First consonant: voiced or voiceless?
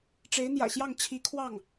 voiceless